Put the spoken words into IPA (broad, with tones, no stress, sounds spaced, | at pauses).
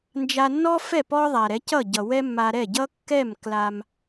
n d͡ʒ a˧ nː ɔ˥ f ɛ˥˩ p ɔ˥ ðˤ a˩ ɾ ɛ˩˥ c ʌ˥˩ ɟ ʌ˩ w ɛ˥ mː a˧ ɾ ɛ˥˩ ɟ ʌ˥ kː ɛ˥˩ m k l a˧ m